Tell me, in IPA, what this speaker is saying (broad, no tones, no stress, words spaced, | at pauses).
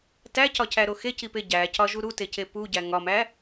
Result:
tæcɒcæɾo xecipe ɟæcɒʒu ɾutece puɟæ ŋɒmæ